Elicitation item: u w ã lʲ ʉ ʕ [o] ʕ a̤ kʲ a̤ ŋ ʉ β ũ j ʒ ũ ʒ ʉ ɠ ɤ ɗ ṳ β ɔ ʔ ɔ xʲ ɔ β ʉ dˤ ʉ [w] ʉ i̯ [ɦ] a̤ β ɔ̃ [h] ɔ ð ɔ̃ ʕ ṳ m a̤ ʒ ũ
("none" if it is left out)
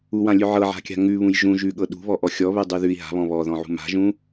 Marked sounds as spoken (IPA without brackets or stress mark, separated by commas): ɤ, ð, ɦ, β